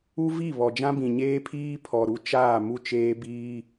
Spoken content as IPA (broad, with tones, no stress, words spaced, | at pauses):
u˦vi˦˨ βɔ˨d͡ʒã˦bĩ˨ ɲeː˦pʰiː˦ pʰɔ˨ɾu˦t͡ʃaː˦˨ mu˦˨t͡ʃeː˦biː˦